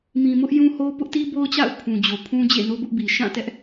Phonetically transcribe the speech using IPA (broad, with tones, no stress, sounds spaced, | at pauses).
m ĩ˨ m ʊ˦ ʔ j ũ˦ h o˦ p ʊ˦ ʔ t i˦ b o˦ ʊ̯ t͡ɕ a̰˦˨ ʊ̯ pʰ ũ˨ d͡ʑ o˨ pʰ ũ˦ d͡ʑ ḛ˦˨ n o˦ b ʊ˦ ʔ b i˨ ʃ ã˦˨ t ɛ˦ ʔ